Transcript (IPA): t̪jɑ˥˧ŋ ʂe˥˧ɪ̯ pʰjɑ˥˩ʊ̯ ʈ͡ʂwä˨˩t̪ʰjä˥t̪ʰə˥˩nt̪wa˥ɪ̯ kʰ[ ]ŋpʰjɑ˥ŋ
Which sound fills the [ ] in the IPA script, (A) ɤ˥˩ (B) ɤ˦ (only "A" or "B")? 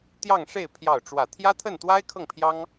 A